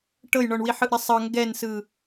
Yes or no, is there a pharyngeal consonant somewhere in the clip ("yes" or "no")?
yes